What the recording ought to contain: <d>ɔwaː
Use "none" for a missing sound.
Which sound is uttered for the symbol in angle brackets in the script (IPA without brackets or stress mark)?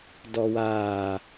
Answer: d